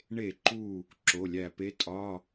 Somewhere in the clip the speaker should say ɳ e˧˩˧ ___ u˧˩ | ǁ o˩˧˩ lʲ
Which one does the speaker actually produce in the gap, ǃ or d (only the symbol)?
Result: ǃ